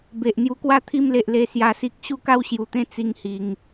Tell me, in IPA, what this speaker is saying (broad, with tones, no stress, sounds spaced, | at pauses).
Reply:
b e˨ ʔ n̪ j u˧ k w a˥˧ t̪ʰ i˥˧ m l e˨ ʔ l e˧ s j a˧ s i˦ k̚ ɕ u˥˧ k a˥˧ w ɕ j u˨˩ t̪ ẽ˥˧ t͡s i˥˧ ŋ h i˧ ŋ